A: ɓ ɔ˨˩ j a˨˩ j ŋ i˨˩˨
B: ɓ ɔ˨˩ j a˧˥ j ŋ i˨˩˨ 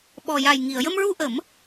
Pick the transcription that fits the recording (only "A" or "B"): A